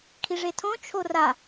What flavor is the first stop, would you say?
aspirated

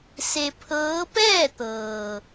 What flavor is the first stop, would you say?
aspirated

